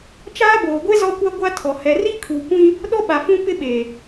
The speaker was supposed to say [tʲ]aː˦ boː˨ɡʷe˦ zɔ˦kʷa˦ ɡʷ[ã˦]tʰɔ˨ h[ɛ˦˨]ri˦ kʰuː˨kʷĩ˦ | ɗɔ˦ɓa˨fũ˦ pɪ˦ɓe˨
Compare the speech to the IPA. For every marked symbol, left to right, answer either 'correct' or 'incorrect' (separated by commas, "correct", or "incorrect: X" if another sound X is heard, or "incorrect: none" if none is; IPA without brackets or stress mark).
incorrect: t͡ʃ, incorrect: a˦, incorrect: ɛ˨